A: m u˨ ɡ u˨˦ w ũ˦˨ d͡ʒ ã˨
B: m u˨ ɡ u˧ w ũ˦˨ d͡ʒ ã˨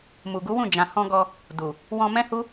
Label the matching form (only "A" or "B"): A